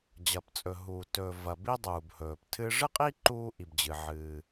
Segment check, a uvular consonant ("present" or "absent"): present